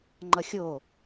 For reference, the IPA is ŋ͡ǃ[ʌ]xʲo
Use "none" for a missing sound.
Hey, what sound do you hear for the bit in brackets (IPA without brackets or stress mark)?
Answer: ʌ